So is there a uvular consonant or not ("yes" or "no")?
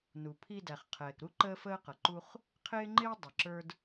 yes